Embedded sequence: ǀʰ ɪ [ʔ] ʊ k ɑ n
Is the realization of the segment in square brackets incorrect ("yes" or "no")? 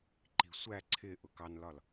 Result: no